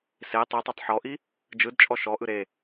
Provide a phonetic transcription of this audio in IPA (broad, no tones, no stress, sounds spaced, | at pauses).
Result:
s e tˤ i tˤ o tˤ ħ ɔ ʔ i | d͡ʒ ɯ d t͡ʃʼ ɔ ʃ ɔ ʔ ɯ ɾ e